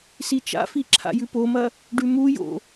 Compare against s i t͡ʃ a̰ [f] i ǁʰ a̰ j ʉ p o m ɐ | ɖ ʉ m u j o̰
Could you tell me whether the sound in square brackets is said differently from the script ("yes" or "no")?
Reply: no